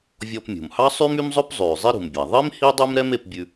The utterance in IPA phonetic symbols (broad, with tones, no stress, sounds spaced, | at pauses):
vʲ ɔ˧ p mʲ ṳ˩ m h ɑ˥ sˤ y˥ m y˥ m zˤ ɵ˥ p zˤ ʉː˩ zˤ i˥ ɾ ṳ˩ m bʲ æ˩ ðˤ i˥ m h i˥ dˤ ʉ˥ m ɾ ɛ˥ m e˧ p bʲ ʉ˧